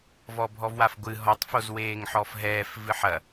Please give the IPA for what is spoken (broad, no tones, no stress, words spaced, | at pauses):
vɔbʱɔvwafɡʷɨ ɦɔtˤ fozweːŋħɔfɦɛːf vɨħɐ